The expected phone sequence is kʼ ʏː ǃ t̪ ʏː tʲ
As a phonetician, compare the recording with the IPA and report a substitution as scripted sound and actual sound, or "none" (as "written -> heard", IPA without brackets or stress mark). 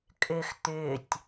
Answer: ǃ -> x